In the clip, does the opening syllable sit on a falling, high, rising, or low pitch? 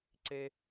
high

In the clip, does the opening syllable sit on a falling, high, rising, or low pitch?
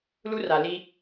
high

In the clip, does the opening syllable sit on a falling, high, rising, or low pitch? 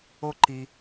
high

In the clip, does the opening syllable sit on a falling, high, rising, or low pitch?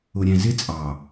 low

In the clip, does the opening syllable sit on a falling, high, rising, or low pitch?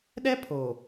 high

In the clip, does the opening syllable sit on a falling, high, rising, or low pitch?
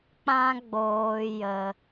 high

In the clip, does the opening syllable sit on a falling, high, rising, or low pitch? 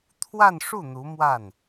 falling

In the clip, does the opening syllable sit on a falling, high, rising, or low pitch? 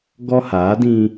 high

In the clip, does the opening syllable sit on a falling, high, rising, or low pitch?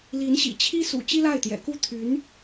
rising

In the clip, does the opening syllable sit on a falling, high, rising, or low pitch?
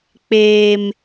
high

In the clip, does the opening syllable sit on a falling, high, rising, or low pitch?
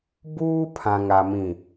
high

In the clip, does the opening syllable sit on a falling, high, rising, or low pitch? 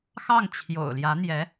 falling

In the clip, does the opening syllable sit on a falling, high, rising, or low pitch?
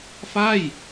falling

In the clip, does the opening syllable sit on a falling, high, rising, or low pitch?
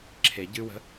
low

